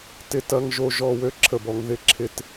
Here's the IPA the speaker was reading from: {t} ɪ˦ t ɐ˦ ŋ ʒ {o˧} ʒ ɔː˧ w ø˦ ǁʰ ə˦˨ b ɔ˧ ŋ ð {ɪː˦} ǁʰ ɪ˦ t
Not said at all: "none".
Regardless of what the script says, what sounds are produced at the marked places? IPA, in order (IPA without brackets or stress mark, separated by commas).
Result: t, o˧, ɪ˦